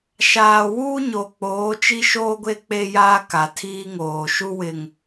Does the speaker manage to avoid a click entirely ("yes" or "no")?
yes